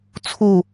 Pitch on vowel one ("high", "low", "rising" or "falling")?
falling